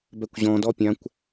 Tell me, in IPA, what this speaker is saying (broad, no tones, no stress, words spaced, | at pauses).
bɛkʷʑɔ̃dɔ pʲãkʷ